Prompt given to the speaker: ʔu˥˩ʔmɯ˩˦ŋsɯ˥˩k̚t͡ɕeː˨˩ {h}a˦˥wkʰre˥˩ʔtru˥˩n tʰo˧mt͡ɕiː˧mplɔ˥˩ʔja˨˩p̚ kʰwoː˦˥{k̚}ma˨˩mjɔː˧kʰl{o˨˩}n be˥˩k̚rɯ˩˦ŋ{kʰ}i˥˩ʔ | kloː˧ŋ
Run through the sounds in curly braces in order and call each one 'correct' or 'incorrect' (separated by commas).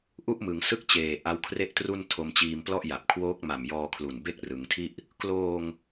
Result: incorrect, correct, incorrect, incorrect